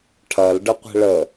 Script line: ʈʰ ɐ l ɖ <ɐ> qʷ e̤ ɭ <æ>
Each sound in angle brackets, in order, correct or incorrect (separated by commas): incorrect, incorrect